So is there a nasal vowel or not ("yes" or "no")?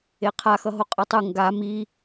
no